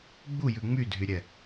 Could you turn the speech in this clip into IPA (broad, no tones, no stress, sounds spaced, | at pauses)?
ɡ͡b u j ʉ ŋ͡m y dʱ y ɾʲ ɛ